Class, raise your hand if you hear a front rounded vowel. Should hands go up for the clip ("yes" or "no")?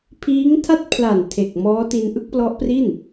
no